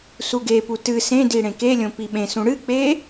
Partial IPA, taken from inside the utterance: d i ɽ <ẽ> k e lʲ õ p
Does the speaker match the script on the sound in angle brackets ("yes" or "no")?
yes